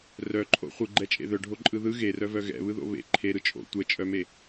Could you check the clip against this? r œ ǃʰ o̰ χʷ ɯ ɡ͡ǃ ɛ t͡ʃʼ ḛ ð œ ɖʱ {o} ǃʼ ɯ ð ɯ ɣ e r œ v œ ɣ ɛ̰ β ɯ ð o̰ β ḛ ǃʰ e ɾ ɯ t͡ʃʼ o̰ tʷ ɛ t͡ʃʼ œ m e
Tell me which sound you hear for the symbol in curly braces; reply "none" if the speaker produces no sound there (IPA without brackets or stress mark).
o